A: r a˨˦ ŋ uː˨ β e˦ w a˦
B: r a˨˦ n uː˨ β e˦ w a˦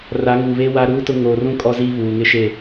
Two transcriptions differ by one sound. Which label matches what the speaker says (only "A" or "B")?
A